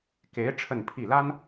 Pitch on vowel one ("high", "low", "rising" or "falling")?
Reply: rising